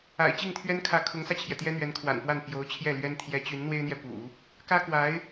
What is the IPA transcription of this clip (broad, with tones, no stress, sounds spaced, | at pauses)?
a̰˨˩ ɪ̯ t͡ɕ i˥˩ ŋ t̪ʰ ɥ ɛ˥ n kʰ ä˧˥ kʰ ʊ˧˥ ŋ s ä˧ t͡ɕʰ j ɛ˩ t̪ j ɛ˥ n̪ ɥ ɛ˧˥ n kʰ w a̰˨˩ n p w a˥˩ n p j o˧˥ ʊ̯ t͡ɕʰ j ɛ˥˩ l ɥ ɛ˥ n t̪ʰ j ɛ˧˥ t͡ɕ y˧˥ n n̪ w e˥ ɪ̯ n̪ j ɛ˨ p ṵ˨˩˦ | k ä˥ k w a˧˥ ɪ̯